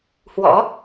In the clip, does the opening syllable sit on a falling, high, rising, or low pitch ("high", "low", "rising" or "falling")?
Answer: rising